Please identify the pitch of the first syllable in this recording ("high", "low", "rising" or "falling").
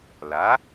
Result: rising